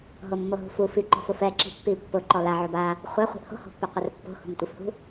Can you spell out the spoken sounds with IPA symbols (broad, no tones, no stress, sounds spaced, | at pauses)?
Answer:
ɦ o mː o ɦ ṳ f u f i ǃ o̤ f ʊ f ɛ ǁ i̤ pː i pː ʊ ǃ ɔ l a ʕ o b a | χʷ a χʷ i̤ ʔ h o̤ h o̤ pː u qʷ ɛ r pː o̤ h ṳ m tʷ i f h ṳ